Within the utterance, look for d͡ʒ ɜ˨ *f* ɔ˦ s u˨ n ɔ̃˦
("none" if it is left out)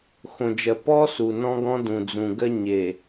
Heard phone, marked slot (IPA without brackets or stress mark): p